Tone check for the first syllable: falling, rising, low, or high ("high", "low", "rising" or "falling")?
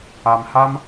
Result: low